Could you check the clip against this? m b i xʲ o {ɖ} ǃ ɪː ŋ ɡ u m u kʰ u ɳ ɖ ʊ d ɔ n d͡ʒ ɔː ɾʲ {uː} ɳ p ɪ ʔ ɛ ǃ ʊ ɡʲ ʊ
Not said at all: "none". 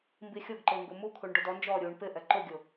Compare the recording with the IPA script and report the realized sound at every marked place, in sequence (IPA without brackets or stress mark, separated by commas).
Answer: ɡ, uː